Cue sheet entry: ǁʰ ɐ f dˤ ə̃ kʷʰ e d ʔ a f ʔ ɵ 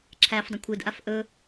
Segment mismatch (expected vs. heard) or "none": ɐ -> æ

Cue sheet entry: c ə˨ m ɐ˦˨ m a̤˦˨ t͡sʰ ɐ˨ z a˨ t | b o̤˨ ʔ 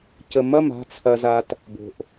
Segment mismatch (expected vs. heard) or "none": none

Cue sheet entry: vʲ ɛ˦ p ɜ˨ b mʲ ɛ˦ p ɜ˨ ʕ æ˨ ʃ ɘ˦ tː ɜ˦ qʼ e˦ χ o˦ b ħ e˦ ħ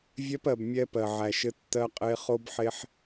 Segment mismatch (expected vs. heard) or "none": none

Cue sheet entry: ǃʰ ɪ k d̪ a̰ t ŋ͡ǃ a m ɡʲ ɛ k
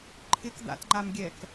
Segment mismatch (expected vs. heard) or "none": none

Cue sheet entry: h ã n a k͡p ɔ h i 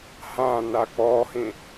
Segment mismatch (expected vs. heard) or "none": i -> ĩ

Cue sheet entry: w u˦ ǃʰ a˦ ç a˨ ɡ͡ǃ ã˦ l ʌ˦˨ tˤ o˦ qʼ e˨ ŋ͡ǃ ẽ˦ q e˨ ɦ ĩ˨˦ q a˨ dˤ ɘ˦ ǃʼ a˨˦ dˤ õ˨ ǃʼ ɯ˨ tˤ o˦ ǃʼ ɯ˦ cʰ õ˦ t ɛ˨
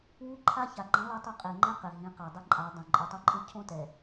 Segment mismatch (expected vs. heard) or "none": ɘ˦ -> e˦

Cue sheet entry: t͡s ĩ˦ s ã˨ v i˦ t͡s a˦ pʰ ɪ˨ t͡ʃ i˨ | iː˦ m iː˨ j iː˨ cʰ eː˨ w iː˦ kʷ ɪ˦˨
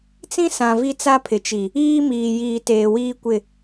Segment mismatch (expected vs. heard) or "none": cʰ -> t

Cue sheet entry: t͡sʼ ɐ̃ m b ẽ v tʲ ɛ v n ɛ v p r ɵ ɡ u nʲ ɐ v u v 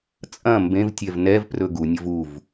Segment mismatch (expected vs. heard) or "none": none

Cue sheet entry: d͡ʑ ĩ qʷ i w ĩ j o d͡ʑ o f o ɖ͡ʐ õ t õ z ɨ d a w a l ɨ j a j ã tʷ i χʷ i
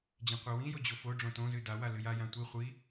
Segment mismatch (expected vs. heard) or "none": none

